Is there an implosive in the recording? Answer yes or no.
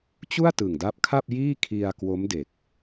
no